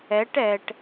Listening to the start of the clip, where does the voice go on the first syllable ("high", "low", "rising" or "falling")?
rising